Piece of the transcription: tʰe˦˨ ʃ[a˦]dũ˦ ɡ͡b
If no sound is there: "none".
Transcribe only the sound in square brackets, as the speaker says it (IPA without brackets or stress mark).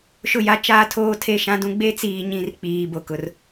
ã˦